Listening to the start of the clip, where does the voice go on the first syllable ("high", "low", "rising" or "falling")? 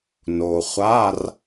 low